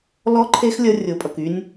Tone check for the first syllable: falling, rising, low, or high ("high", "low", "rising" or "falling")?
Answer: high